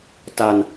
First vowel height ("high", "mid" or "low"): low